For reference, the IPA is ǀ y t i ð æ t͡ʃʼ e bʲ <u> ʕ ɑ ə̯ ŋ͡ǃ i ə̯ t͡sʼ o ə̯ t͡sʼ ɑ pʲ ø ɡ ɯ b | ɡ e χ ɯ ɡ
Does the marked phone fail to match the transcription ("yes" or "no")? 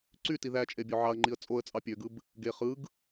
yes